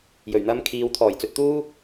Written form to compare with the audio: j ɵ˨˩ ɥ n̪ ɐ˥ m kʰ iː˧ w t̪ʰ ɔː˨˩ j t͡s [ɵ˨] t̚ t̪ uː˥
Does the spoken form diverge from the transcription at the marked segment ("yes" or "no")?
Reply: no